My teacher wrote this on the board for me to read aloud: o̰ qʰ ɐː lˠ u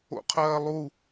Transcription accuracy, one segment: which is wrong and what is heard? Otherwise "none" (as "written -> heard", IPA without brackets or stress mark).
none